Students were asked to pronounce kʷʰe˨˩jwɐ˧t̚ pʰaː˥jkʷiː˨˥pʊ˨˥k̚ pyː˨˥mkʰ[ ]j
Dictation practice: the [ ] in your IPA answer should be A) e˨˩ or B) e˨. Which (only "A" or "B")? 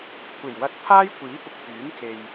B